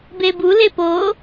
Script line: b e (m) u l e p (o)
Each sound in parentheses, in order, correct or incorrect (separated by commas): incorrect, correct